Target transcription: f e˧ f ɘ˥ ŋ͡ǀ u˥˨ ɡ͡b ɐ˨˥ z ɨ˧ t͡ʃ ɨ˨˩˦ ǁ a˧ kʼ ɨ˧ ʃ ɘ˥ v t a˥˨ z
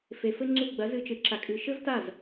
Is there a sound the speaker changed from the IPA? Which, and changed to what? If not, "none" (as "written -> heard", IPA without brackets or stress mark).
none